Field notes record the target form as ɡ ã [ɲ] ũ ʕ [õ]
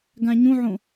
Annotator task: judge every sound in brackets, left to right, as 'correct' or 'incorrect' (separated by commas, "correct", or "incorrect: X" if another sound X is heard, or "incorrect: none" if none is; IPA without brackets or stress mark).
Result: correct, correct